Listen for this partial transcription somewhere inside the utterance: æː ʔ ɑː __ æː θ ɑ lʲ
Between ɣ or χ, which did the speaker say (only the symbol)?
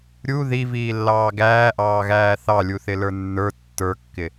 ɣ